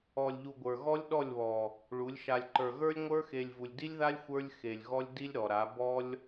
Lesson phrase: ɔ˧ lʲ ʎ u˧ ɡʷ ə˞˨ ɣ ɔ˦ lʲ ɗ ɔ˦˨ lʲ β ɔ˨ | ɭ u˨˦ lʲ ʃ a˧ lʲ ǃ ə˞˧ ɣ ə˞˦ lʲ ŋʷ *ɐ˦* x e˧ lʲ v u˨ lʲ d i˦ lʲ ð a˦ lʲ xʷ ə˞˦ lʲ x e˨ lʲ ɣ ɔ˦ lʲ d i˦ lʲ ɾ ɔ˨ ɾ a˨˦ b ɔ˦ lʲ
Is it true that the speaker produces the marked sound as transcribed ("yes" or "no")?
no